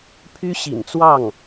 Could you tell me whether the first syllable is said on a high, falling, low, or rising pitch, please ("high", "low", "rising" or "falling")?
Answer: high